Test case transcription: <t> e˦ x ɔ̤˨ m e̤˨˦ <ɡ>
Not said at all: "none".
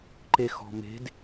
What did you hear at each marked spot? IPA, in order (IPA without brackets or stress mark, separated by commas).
ǃ, d